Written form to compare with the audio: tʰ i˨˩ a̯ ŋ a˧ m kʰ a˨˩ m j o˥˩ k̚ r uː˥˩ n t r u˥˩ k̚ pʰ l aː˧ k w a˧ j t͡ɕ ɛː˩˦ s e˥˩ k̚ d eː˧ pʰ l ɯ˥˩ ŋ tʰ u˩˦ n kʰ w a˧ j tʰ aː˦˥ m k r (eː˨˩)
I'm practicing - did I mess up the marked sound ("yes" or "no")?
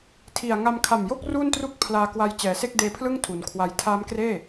yes